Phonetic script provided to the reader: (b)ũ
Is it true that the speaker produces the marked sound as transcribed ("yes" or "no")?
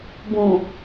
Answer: yes